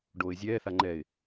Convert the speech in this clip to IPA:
ɖ oː ɪ̯ zʲ ɛː θ a ŋ͡ǃ ɛː ɪ̯

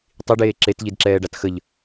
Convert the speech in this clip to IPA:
tˤ i ɖ eː ǁ e t ʎ i d ǁ ɛː ɖ a t x ə ʎ

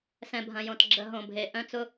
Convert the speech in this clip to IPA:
s ɛ̃˨ bʱ ɐ̃˨ j õ˨ t ɡ͡ǁ ə˨˦ ɦ õ˨ bʱ e˨˦ ʔ œ̃˦ t͡s ʊ˦

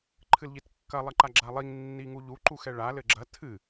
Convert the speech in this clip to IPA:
ǃʰ ɨ l ʎ i t kː ɐ lˠ ɐ ǃ a ɡ͡ǁ a lˠ i ŋ nː i ŋ u ʎ u ǃ u x ɛ ɭ a l ɘ ɡ͡ǁ ɐ tʰ ɨ

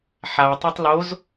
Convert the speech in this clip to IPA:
ħ a tˤ a tˤ l o z

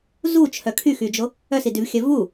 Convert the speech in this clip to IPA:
z u t͡ʃʰ œ kʰ y x y d͡ʒ o | œ s i d y v xʲ œ v u

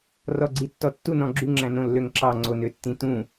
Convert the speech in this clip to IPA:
r ɔ ɡ͡ǀ i tː ɔ tː u n ɔ̃ ɡ͡ǁ y ŋ͡ǁ æ̃ n õ lː ø ŋ ǁ ɑ ŋ͡ǀ o n ø tː ĩ t ũ

